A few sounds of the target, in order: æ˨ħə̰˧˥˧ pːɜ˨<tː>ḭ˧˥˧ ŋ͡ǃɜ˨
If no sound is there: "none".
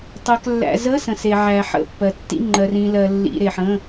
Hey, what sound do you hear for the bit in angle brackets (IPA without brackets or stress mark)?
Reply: tː